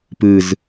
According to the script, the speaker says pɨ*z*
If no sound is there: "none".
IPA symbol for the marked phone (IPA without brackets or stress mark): z